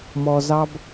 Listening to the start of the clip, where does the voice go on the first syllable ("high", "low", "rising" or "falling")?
low